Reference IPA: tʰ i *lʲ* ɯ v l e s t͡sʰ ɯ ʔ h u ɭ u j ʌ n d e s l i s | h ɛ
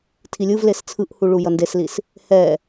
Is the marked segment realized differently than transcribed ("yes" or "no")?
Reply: no